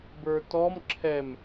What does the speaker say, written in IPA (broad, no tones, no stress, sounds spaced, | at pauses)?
b ə˞ t ɔ m ǁʰ ɛ m